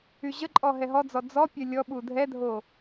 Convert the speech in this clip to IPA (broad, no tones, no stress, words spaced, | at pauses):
yʑəǃʼɔ ɦɛɦɔd͡zɔ d͡zɔ pʲœlʲɔɓu dʱɛdʱo